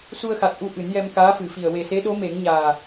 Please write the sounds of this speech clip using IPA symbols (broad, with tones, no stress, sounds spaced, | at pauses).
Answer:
s u˧ ə̯ x a˨˩ t̚ ʔ u˧ ʔ ɨ˨˩˦ n j ɛ˧ m k aː˧˥ f ɨ˨˩˨ f i˨˩ ə̯ w e˨˩ s e˧˥ ɗ o˧˥ m e˨˩˦ ŋ ɲ aː˨˩